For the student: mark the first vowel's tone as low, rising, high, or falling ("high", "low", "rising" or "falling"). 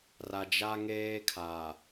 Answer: low